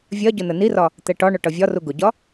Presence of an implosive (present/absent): absent